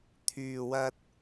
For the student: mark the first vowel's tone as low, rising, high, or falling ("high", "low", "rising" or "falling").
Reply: low